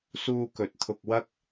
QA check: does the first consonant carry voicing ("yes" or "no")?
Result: no